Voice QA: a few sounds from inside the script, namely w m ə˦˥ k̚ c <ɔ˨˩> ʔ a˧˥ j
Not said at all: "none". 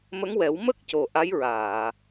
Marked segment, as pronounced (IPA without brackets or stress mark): o˨˩